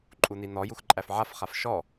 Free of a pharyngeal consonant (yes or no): no